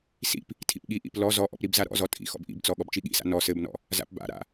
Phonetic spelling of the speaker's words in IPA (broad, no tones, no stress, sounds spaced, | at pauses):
s ḭ p | tʰ ḭ p ɠ i ʔ ḭ p l ɔ z ɔ ʔ ɔ̰ p ɾ i b z a ɾ ɔ̰ z ɔ tʼ ḭ x ɔ̰ b ʔ ḭ b t͡s ɔ ɠ ɔ b t͡ʃ i ɠ ḭ s a̰ n ɔ s ɘ b n ɔ̰ | z a̰ p b a̰ ɾ a̰